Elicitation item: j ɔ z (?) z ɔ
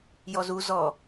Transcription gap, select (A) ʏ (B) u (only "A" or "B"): B